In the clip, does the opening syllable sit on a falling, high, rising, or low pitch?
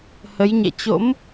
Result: rising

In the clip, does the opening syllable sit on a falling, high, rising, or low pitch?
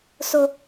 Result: high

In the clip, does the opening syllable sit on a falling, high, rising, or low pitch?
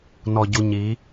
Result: low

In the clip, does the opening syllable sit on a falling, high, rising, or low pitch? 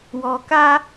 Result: low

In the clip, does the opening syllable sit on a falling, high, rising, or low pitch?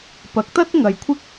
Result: rising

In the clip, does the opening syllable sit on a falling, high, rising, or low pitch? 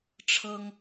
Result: high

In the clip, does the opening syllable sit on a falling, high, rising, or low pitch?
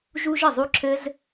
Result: high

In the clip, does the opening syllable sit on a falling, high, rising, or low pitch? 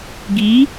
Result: rising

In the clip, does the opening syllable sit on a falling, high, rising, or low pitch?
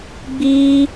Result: high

